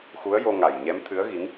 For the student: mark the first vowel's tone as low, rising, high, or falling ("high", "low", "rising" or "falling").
rising